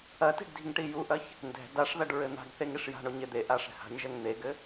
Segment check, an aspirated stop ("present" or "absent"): absent